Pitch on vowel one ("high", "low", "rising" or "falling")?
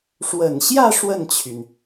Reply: low